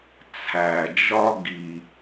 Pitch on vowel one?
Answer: low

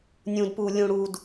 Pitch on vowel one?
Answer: low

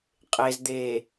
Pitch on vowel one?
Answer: low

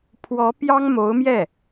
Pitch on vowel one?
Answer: rising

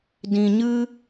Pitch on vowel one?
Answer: low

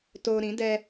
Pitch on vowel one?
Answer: low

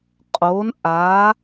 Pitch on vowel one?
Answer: rising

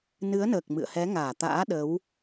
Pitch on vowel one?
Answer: rising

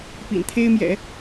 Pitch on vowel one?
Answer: low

